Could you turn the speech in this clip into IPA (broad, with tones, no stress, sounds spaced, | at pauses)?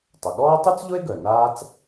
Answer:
tˤ ʊ˩ ɠ ɔː˥ tˤ y˥ t͡s ʎ ʊ˥ e̯ ɡ œ˩ n aː˥ t͡s